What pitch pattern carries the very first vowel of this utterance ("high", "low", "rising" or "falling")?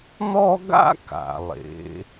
high